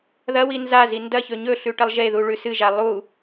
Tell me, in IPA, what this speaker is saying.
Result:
ð ɐ w i n z a z i n d ɐ ç ɵ ɲ ɵ ɬ ʉ ʈ ɐ lˠ ʒ e ð u ɭ ʉ s ɨ ʒ a lˠ u

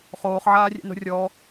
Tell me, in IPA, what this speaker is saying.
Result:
χ oː χ ʕ aː rʲ ɛ̰ n o̤ rʲ ɔ

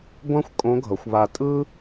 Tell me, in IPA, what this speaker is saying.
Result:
ɡʷ ã˥ xʷ kʼ õ˧˥ ɡʱ ʌ˩˧ xʷ β a˧ tʼ ɯ˥

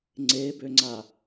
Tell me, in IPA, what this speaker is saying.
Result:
ŋ͡ǀ e b ø ŋ͡ǀ a

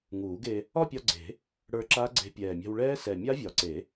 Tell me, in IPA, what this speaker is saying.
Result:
ŋ uː˨˩˦ ɡ e˧ | ɒ˥˧ pʲ ɒ˧ ɡ͡ǀ e̤˨˩˦ | ɽ ə˞˧ ǁ a˦˥ ɡ͡ǀ e̤˧ pʲ ɛː˨˩ mʲ a̤˧ w ɭ ɛː˦˥ s ɛ˨˩ mʲ a˦˥ vʲ ɒ˨˩˦ ǀ e˨˩˦

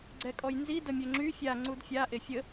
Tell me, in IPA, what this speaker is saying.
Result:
ɡ͡ǀ ɛ kʼ ɔ j n z i d ə mʲ ø ŋ͡ǁ y fʲ a ŋ͡ǀ u d fʲ a ʔ e fʲ ə

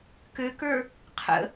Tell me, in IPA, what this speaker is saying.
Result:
k ø k ə˞ | qʰ ə̰

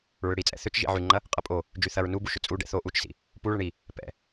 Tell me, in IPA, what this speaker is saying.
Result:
ɹ ʏ ɽ i t͡sʼ ɛ̰ θ ʏ t͡ʃ ʒ ḭ ʕ y ŋ͡ǃ ɐ | qʼ ɐ pʼ o | d͡ʒ y θ ɐ ɹ n u b u ʃ ʏ t͡sʼ u ɖ ɛ̰ θ o ʔ u t͡ʃ s ḭ | p u ɭ ə ɳ i | p ɛ̰

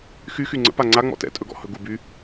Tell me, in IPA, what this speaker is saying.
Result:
x y x y ŋ͡ǀ ə̰ p a ŋ͡ǀ a ŋ͡m ɔ̰ t ɛ̰ tʼ ɵ ɡ ɔ̰ h ɵ ɡ u b y

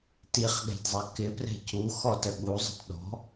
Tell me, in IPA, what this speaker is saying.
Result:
t i χ ɠ ɛ̤ d zˤ ɛ k ɪ p r ɛ̤ c u x ɔ t ə ɠ u zˤ ə̤ t ɗ ɔ̤

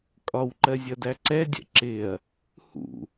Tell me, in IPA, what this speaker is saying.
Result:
kʼ ɒ w ǃ ɜ zʲ ʌ d æ ǀ ɛ dʲ ɛ̰ ǁ ɪ ɐ̯ | h ṵ

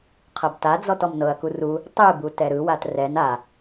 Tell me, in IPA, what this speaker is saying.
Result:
qʰ ɤ b t a d͡z ɔ t ɔ m n ɤ ɐ̯ k u r u | tˤ i b u t ɛ ɾ ɯ w a t r ɛ n a

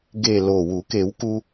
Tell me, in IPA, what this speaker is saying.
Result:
ɡ e˨˩ l o˨˩ w u˨˩˦ k e˨˩˦ w k u˧

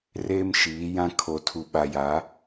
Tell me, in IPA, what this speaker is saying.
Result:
r eː˦ m ʃ iː˨˦ j ã˦ kʰ o˨ tʰ u˨ ɓ a˨ j a˨˦

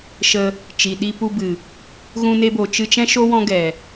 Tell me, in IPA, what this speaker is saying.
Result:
ʃ ə˧ | t͡ʃ i˨ ɗ i˧ p u˧ b ɨ˨ | ɣ ũ˧ n e˧ b o˨ t͡ʃ ɨ˧ t͡ʃ ɛ̃˦ ʃ o˦ w ɔ̃˦ ɡ ɛ˨

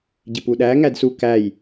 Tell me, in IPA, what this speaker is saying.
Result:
ɟ ɪ p u ɗ æ ŋ æ d s u k æ j

